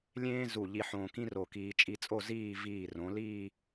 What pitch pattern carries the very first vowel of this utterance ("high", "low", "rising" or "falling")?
high